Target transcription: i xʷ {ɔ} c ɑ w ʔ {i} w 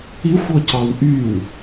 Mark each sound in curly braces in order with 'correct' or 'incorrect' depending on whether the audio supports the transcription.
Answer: correct, incorrect: y

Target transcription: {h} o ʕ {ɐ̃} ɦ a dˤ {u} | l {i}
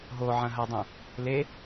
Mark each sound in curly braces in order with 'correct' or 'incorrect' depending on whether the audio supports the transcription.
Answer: incorrect: ɦ, correct, incorrect: ũ, incorrect: e

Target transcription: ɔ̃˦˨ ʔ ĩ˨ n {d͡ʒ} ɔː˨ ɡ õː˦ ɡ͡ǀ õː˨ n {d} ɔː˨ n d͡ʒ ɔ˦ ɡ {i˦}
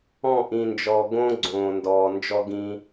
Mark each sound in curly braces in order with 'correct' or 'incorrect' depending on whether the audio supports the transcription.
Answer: correct, correct, incorrect: ĩ˦

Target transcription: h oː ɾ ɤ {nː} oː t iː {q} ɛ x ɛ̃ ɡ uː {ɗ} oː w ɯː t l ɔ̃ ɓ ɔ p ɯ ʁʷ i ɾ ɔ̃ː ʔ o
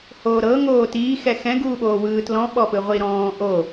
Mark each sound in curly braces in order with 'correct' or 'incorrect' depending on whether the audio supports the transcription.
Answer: incorrect: ŋ, incorrect: x, incorrect: ɓ

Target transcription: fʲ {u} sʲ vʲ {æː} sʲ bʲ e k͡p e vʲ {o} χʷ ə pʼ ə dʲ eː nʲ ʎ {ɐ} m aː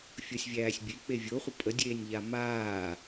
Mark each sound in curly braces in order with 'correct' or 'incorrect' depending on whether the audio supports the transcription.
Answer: incorrect: o, correct, correct, incorrect: a

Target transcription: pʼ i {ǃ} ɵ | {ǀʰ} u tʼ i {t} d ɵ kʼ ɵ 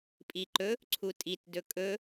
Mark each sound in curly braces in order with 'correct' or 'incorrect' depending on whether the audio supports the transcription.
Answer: correct, correct, correct

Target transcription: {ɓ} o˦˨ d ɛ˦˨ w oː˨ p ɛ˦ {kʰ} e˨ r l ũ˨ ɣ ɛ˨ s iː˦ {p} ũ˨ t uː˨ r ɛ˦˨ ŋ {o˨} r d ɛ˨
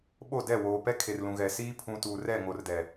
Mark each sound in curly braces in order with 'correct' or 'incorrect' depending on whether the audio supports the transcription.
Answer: correct, correct, incorrect: pʰ, correct

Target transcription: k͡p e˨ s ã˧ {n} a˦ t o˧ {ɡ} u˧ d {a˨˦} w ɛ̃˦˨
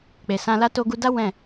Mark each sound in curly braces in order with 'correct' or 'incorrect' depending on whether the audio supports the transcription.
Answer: incorrect: l, correct, incorrect: a˦

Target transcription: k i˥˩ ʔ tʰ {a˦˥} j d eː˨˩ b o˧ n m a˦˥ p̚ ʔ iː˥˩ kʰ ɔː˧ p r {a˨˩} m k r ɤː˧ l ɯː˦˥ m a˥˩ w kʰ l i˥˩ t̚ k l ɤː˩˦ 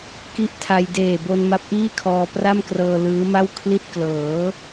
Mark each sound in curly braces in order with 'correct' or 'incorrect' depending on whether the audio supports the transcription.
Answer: incorrect: a˧, incorrect: a˥˩

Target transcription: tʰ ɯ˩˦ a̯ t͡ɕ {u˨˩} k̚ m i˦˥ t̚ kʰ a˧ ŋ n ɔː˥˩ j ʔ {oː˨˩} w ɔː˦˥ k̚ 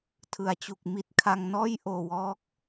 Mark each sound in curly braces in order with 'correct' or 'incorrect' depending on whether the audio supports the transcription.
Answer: correct, correct

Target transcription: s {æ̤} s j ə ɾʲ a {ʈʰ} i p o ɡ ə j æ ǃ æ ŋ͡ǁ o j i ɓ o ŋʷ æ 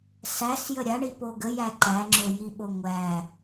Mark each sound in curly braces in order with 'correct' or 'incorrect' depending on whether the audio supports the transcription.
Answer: incorrect: æ, incorrect: ɳ

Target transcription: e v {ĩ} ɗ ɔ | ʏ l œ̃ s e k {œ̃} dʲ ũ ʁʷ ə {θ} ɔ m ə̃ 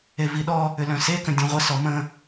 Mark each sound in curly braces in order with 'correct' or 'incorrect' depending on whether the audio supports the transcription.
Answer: incorrect: i, incorrect: ə̃, incorrect: s

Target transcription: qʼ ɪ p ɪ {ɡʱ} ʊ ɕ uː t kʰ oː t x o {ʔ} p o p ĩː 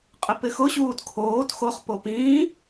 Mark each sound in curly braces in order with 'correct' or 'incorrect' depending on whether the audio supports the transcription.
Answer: incorrect: x, incorrect: χ

